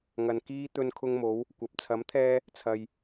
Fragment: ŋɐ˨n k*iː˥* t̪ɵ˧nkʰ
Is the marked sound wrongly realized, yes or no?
no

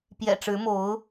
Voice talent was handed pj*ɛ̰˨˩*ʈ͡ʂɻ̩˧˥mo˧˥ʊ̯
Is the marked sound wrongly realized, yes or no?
no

